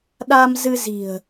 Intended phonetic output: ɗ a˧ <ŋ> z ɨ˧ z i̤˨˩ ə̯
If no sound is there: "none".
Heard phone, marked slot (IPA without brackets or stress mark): m